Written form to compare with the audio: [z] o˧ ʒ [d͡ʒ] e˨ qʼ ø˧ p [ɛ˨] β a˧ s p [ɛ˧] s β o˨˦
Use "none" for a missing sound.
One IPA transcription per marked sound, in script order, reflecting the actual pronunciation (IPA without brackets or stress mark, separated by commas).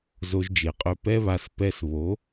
z, d͡ʒ, ɛ˦, ɛ˧